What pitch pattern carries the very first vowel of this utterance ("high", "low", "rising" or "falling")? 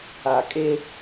low